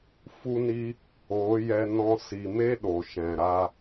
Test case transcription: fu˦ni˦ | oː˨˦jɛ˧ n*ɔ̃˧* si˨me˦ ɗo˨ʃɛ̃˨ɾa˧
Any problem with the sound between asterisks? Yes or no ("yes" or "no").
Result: no